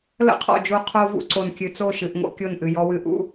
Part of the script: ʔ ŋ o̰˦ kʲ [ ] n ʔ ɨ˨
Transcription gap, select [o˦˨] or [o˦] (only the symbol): o˦˨